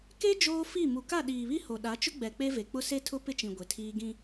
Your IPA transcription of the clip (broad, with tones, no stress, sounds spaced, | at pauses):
k e˦ d͡ʒ oː˦ f i˦˨ m u˨ k a˦˨ ɗ iː˨ β i˦ h o˨ ɗ a˨˦ t͡ʃ ʊ˦ ɡ͡b ɛ˨ k͡p e˦ v e˨ k͡p ʊ˦ s e˦ tʰ ʊ˦ p ɪ˦ t͡ʃ ĩ˨ ɡʷ e˨ tʰ iː˦ ɡ ĩ˦